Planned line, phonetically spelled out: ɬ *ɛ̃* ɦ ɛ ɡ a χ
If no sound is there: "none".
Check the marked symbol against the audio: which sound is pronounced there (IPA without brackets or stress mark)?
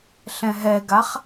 ɛ̃